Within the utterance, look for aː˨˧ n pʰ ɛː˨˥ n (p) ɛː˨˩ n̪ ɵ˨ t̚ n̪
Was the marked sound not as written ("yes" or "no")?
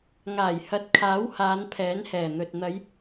yes